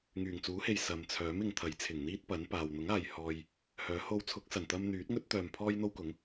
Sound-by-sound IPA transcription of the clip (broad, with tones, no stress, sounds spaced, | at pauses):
ŋ yː˨˩ ŋ t͡s uː˨˥ h e˨ j s ɐ˨ m t͡sʰ œː˨˥ m ɪ˨ ŋ t̪ʰ ɐ˨˥ j t͡sʰ ɪ˨˩ ŋ n̪ iː˥ t̚ p ɐ˨˥ n p aː˨ w n̪ ʊ˨˥ ŋ aː˨ j h ɔː˧ j | h œː˨˥ h o˧ w t͡sʰ ʊ˨˥ k̚ s ɐ˨˩ n t̪ ɐ˧ m n̪ yː˨˥ t̚ ŋ ɵ˥ t̚ t̪ œː˨ m pʰ ɔː˥ j n̪ o˥ w k ʊ˨˥ ŋ